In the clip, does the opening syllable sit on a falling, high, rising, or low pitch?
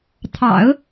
low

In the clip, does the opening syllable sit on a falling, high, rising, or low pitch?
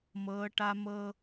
rising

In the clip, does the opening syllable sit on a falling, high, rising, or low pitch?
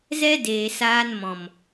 high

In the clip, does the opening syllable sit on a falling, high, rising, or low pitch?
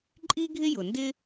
high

